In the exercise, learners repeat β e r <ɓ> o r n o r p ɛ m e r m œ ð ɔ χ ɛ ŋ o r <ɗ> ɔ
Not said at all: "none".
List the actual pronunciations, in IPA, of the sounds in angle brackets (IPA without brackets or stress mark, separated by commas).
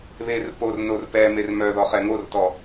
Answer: p, t